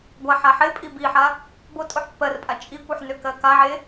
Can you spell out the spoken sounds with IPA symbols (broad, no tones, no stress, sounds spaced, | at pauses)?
ɡʷ a ħ a ħ e pʼ i b i ħ a | b o tʼ o ħ pː ɜ r pʼ a t͡ʃʼ i kʷ i ħ n ø k ɜ k a ʕ e